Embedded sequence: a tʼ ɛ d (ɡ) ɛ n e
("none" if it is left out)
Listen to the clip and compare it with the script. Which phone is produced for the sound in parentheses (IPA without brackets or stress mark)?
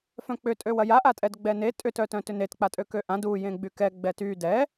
ɡ͡b